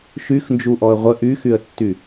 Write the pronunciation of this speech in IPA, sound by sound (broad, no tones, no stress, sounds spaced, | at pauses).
ʃ y x n d͡ʒ u ʔ ɔ ə̯ ʁʷ ə ʔ y x y ə̯ tː y